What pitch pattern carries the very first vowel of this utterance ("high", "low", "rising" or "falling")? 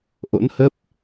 rising